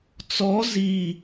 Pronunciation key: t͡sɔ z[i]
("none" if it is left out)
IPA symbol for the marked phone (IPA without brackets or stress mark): i